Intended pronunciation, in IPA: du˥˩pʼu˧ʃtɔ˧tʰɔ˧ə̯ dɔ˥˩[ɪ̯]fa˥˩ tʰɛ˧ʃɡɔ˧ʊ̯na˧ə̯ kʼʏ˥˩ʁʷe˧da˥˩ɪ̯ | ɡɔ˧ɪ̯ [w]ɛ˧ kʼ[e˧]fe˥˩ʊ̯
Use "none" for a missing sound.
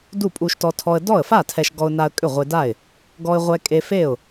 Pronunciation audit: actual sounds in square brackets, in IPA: ə̯, ʁʷ, e˧

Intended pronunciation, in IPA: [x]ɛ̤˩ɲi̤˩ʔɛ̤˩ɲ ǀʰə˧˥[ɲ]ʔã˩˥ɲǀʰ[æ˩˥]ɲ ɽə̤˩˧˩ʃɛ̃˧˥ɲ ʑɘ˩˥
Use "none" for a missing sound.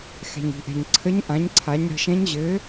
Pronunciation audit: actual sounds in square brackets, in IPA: x, ɲ, a˩˥

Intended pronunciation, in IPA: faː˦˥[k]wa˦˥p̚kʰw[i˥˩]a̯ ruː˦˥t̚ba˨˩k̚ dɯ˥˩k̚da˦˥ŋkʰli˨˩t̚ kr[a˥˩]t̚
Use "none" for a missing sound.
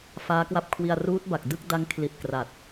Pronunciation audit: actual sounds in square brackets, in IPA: k, i˧, a˨˩

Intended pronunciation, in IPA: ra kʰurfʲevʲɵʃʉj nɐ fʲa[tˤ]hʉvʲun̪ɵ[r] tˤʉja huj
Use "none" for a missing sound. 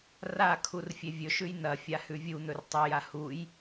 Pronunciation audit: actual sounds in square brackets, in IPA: none, r

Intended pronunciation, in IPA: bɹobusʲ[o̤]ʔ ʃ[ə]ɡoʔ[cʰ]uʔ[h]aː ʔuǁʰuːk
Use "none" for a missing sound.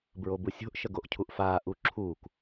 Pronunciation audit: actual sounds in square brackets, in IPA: o̤, ə, cʰ, f

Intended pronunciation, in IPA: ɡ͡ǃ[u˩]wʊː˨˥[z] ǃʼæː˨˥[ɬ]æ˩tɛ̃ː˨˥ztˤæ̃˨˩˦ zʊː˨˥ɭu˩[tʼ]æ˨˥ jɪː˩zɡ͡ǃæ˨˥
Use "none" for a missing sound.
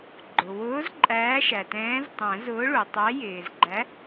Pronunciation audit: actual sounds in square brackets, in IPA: ʊ˩, z, ʃ, tˤ

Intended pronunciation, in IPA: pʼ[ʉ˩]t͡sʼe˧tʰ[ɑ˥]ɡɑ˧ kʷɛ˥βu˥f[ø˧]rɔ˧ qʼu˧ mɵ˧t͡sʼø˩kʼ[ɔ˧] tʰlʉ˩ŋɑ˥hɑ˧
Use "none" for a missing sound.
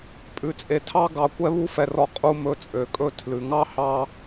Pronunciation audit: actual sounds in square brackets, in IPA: ʉ˧, ɑ˥, ɛ˧, ɵ˧

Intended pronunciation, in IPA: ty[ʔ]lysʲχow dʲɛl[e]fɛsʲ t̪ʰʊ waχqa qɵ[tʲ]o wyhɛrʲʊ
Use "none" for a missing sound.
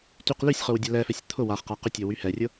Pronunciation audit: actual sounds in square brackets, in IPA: q, ɛ, tʲ

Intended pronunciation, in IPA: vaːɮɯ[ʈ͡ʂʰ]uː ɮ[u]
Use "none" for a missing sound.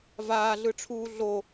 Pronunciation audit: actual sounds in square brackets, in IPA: ʈ͡ʂʰ, o

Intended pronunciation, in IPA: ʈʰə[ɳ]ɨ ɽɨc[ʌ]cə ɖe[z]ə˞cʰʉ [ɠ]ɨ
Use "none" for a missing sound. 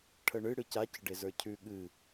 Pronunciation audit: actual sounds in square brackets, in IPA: ɳ, a, z, ɠ

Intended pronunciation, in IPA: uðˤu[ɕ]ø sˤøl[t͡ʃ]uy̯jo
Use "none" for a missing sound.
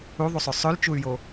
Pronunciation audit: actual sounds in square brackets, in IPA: sˤ, t͡ʃ

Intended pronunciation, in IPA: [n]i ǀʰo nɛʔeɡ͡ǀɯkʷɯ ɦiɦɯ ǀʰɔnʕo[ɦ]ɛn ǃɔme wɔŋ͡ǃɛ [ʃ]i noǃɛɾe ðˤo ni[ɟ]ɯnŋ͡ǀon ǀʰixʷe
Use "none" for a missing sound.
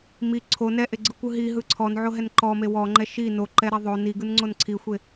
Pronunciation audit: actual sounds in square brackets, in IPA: m, ɦ, ʃ, ɡ

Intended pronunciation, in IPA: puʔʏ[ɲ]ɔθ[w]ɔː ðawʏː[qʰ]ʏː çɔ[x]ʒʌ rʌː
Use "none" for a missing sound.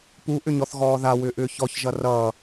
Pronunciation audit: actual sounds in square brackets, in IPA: ɲ, ɣ, ʔ, ç

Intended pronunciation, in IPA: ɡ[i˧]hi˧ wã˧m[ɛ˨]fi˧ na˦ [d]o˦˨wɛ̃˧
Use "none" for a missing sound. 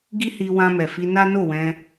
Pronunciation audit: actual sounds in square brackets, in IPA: i˦, ɛ˨, n

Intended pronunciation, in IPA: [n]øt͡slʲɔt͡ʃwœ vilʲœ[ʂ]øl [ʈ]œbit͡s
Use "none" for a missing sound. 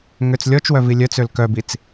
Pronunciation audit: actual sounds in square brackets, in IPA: ŋ, t͡s, k

